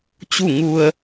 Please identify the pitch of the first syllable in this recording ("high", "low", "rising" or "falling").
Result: falling